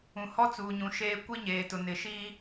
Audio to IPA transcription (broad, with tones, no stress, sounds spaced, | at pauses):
ũ˨ h ɔ˦ t͡s uː˨ ɲ ũ˨ ʃ eː˦ kʷ i˦ ɲ eː˨ t ʊ˨ n ɪ˨ ʃ i˦